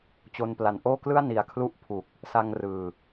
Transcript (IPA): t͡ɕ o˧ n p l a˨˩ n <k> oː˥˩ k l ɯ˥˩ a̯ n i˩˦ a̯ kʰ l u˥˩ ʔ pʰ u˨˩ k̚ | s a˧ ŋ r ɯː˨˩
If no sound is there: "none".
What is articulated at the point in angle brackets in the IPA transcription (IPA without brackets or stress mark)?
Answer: ʔ